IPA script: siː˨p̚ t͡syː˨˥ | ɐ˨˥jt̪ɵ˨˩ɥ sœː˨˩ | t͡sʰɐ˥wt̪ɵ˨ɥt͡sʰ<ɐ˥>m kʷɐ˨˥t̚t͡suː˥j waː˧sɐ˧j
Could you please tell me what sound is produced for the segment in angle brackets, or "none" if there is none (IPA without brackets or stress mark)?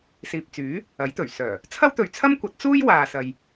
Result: ɐ˥